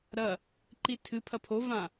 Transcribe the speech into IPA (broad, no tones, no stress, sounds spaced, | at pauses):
ɾ ɐ | ǃ i tʰ ɨ pʰ ɐ pʰ o v ã